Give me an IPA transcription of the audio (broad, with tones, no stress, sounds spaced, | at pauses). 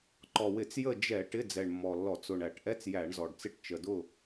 ǃ ɔ˨˩ w ɪ˧˩˧ t͡s j ə˦˨ d͡ʒ ɛ˧˩˧ ʈ ɪ˧˥˧ d͡z ɛ˨˩ ɳ mː ɔ˨˩ lː ɔ˧˩˧ t͡s ʊ˨˩ ɳ æ˧˩˧ ʈ ʔ ɛ˧˥˧ t͡s j æ˧˩˧ ɳ z ɔ˨˩ ɖ t͡s ɪ˦˨ ʈ t͡ʃ ə˨˩ d ʊ˦˨